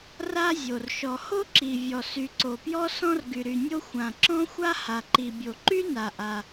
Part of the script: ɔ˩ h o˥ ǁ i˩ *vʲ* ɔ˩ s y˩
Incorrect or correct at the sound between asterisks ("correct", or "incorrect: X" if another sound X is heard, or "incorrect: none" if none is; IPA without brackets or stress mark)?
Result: correct